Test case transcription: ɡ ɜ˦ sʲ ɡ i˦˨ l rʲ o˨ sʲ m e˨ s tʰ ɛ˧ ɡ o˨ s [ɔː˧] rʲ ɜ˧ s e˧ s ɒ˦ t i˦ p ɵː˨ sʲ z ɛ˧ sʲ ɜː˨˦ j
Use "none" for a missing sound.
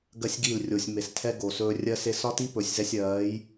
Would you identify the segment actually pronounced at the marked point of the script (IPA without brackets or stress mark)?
ɵː˧